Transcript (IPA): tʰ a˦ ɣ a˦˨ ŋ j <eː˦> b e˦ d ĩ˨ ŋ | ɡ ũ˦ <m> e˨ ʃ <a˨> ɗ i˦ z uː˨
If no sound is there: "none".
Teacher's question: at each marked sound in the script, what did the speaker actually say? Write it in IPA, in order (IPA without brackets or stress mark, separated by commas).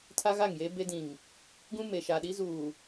eː˦, m, a˨